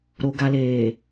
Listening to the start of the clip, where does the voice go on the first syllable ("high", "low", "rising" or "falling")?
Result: low